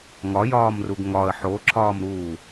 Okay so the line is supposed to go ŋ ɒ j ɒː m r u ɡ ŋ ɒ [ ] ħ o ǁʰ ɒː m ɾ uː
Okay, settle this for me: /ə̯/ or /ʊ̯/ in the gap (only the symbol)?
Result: ə̯